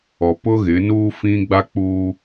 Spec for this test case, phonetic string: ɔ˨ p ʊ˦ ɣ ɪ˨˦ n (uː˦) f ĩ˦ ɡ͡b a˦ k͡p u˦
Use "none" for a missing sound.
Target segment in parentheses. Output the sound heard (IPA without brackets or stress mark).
uː˦